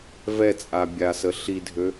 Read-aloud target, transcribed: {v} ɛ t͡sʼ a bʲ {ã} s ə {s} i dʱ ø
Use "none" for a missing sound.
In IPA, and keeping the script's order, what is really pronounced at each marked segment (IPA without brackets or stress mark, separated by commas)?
v, a, ɬ